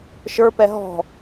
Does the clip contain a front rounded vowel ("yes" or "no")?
no